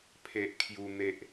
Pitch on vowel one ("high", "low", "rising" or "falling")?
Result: high